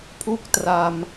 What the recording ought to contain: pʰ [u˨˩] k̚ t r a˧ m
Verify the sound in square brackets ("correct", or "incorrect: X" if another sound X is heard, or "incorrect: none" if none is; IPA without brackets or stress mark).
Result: incorrect: u˥˩